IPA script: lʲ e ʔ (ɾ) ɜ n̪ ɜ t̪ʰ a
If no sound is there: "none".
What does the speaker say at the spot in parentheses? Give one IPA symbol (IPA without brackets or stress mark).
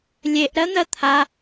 ɾ